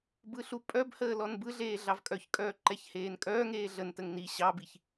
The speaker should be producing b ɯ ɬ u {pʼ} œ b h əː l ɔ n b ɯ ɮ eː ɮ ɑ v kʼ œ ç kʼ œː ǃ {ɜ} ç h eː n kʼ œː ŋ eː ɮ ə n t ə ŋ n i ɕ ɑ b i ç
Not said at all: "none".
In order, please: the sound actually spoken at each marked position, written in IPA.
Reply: pʼ, ɛ

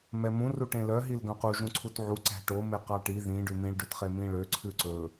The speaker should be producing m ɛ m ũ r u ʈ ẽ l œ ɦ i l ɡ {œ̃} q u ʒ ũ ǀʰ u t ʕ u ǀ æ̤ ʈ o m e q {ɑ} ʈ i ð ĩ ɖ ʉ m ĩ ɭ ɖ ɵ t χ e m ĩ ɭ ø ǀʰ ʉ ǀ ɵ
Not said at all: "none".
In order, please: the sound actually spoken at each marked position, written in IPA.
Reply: œ̃, ɑ

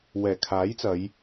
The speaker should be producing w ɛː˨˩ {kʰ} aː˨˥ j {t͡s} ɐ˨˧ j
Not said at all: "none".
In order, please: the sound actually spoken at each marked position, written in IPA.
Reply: kʰ, t͡s

